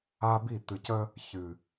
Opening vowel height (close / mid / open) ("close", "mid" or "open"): open